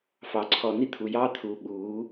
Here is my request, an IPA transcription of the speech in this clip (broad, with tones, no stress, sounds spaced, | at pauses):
f ɑ˨ ǀʰ ɔ˨ n i˧ t̪ʰ u˨ j ɑː˧ t̪ʰ uː˨ ɓ uː˨˦